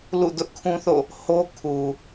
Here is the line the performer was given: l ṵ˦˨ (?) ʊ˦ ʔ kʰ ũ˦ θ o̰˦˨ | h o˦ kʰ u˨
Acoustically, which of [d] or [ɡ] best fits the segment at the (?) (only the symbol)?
d